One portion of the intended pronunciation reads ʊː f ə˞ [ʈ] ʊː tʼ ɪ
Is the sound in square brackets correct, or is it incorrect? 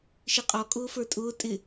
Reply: incorrect